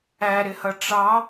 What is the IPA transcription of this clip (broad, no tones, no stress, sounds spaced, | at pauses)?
æ ɾ ɪ h ʌ ʈ͡ʂ ɑ